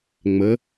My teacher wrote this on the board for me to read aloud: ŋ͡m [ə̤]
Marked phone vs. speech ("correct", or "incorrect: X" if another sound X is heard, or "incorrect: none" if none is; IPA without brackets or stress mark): incorrect: ə